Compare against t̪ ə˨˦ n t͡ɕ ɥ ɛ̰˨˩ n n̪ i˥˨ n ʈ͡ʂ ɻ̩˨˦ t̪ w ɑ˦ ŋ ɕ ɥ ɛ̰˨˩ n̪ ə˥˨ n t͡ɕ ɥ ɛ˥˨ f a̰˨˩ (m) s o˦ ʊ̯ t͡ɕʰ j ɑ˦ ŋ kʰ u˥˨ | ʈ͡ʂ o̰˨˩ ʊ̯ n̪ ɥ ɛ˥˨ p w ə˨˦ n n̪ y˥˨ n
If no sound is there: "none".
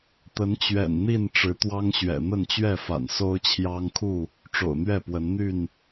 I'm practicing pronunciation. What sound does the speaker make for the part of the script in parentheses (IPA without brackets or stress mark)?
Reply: n